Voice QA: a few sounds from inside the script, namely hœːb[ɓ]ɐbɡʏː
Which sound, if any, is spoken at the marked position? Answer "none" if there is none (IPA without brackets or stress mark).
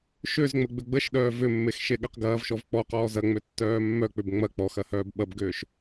ɓ